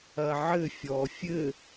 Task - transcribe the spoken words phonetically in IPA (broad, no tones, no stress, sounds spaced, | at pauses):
ɐ ʕ ɘ fʲ ɔ fʲ ɘ